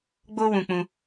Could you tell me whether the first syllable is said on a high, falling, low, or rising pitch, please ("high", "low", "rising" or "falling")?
high